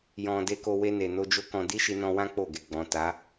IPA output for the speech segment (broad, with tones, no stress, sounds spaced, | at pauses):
j ɔ̃˨ d e˧ k o˧ w e˧ n e˨ n o˧ d͡ʒ o˦ k ɔ̃˧ d i˦ ʃ i˧ n ɔ̃˧ w ã˦ k͡p o˦˨ ɡ e˨ ɡ͡b ɔ̃˨ t a˨˦